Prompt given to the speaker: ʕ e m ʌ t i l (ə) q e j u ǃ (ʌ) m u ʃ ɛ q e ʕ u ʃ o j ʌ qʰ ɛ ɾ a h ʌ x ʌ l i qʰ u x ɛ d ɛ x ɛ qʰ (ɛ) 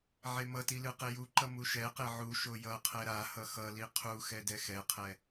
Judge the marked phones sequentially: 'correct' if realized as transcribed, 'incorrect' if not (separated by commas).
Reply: incorrect, correct, correct